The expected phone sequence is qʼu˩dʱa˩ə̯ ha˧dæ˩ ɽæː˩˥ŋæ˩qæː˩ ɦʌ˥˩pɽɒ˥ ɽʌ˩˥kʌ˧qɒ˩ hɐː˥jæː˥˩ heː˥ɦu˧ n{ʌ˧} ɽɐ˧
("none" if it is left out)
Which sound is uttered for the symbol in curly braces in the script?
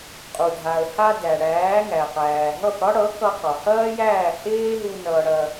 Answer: ʌ˧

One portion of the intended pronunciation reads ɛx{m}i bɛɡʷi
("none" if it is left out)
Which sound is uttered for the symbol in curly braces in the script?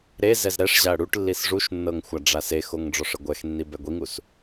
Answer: nː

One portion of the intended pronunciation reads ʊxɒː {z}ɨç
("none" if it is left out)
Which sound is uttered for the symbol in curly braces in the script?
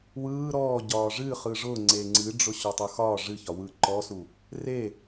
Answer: ʐ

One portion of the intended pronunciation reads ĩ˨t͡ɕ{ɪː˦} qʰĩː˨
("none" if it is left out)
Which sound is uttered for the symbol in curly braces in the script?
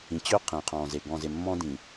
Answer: ʏː˦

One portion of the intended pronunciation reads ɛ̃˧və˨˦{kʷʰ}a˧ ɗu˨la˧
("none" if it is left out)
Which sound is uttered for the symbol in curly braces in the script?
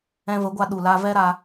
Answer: ɡʷ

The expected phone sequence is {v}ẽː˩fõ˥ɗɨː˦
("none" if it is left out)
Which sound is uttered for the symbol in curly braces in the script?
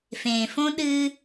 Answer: f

